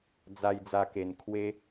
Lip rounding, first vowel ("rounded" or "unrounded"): unrounded